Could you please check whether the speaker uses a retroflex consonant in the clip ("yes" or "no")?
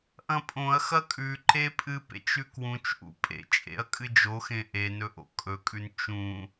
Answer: no